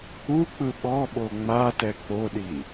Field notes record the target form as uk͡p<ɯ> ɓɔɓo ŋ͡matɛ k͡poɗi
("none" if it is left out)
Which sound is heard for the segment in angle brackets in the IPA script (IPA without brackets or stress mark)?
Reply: ɯ